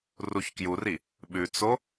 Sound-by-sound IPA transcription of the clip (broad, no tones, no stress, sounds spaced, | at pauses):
r u ç k j u r i | ɓ ʉ t͡s o